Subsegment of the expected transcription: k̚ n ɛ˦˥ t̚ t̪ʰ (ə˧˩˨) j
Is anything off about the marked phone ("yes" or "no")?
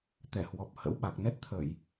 no